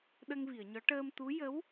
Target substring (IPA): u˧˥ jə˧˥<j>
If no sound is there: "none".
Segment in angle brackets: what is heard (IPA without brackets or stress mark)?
w